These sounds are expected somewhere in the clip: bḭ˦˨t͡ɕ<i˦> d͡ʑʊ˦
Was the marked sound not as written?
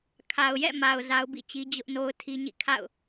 no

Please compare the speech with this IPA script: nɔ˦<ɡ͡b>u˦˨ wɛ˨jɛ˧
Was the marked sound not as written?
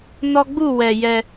no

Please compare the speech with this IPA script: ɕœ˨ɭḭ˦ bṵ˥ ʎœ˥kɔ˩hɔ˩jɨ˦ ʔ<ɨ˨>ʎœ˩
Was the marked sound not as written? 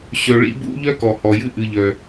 no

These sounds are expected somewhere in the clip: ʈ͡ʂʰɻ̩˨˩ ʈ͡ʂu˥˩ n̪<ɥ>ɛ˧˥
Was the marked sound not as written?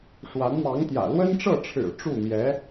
yes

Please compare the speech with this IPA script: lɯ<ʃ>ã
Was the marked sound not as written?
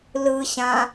yes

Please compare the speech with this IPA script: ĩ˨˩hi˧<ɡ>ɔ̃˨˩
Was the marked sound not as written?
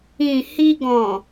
no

